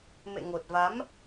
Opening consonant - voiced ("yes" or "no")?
yes